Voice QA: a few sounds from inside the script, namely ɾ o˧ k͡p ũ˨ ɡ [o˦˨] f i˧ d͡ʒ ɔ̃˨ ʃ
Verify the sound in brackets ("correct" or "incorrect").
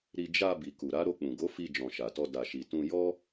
incorrect